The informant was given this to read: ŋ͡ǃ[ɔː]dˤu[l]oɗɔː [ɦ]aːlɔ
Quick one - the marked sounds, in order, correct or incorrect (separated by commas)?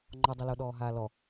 incorrect, correct, correct